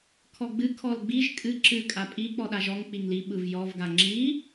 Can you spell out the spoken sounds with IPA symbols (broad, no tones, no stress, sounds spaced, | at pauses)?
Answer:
kʰ ɔ ɡ͡b ɨ kʰ ɔ l ɡ͡b i ʒ kʼ ɨ ǁ ɨ kʼ a pʼ i k͡p ɔ ɗ a ʒ ɔ ŋ k͡p i ŋ l i ɓ ɯ v j ɔ v ɡ a ŋ͡ǁ i